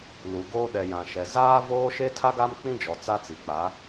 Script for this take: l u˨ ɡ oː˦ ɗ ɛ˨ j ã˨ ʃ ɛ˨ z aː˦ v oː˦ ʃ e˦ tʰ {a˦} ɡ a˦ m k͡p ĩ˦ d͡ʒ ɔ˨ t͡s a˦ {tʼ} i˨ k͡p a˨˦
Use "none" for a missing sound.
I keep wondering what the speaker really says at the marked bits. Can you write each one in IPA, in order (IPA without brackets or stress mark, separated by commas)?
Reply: a˦, t͡s